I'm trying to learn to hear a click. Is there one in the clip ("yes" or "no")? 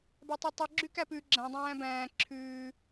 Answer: yes